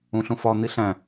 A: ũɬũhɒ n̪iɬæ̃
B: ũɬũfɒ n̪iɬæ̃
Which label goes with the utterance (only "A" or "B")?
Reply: B